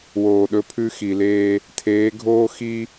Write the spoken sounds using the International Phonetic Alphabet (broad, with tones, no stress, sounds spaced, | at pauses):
w oː˨ ɗ ɵ˦ pʰ ʉ˦ x i˨ l eː˦ | tʰ eː˨˦ ɡʱ oː˦ x i˦